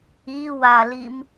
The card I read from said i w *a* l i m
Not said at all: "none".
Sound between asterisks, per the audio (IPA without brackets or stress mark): a